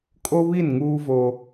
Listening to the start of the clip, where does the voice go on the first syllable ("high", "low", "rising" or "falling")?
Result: high